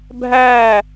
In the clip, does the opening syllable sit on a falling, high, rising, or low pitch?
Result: falling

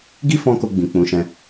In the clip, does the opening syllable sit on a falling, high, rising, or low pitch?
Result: high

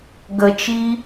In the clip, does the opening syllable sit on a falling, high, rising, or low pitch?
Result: low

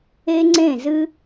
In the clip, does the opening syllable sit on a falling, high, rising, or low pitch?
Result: high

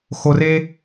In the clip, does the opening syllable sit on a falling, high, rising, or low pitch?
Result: low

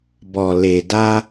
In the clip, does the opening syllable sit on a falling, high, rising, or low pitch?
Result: low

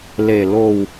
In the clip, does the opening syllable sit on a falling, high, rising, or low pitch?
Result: low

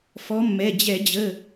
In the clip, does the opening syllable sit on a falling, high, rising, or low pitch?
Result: rising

